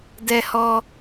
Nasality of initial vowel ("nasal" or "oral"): oral